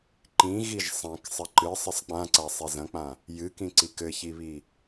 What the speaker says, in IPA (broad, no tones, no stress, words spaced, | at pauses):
ǃĩ ɣiʒsˤɐ̃k sˤɘǃɨ sˤɨsˤk͡pãǀa sˤizɐ̃k͡pã | jɨkĩǀik ɘçiβi